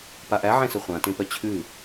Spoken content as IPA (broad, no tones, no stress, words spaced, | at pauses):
paʔæ ʕẽsəχʷã tẽpœt͡ɕʰʉ